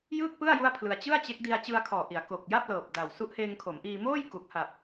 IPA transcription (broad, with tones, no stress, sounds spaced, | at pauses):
j ɯ˥˩ k̚ p ɯ˥˩ a̯ j u˥˩ a̯ pʰ l ɯ˧ a̯ t͡ɕ ɯ˥˩ a̯ t͡ɕ e˦˥ k̚ d i˧ a̯ t͡ɕ ɯ˧ a̯ kʰ ɔː˨˩ ʔ i˩˦ a̯ k o˨˩ k̚ j a˥˩ p̚ l ɤː˨˩ p̚ d a˨˩ w s u˦˥ ʔ h eː˧ ŋ kʰ o˩˦ m ʔ iː˧ m oː˥˩ j k u˨˩ k̚ h a˨˩ p̚